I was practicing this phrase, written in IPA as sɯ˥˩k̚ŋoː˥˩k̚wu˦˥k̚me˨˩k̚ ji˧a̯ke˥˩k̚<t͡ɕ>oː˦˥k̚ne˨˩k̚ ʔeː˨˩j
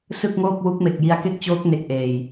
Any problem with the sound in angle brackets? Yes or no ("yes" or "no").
no